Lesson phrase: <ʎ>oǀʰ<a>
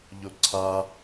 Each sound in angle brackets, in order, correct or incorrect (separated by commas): correct, correct